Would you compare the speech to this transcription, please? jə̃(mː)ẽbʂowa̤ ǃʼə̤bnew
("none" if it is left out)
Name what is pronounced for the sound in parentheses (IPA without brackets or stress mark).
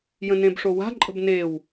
n